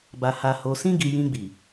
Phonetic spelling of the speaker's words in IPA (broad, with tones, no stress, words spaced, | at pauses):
ba˨ ha˧ho˧ sĩ˧ɡi˨ jĩ˧ɡ͡bi˨